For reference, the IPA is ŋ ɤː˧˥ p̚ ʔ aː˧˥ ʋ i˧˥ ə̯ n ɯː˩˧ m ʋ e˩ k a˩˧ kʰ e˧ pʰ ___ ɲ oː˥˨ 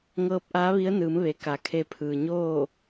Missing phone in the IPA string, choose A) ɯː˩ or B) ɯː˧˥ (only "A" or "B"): A